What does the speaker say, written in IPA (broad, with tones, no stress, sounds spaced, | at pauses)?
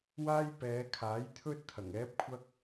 w aː˥ j p ɛː˨˧ kʰ aː˨˥ j t̪ʰ ɵ˥ t̚ t̪ʰ ɐ˨˩ ŋ ɛː˥ p̚ kʷʰ ɐ˥ k̚